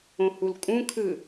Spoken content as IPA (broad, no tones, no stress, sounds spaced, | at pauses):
õ h u l kʼ ũ kʰ ɯ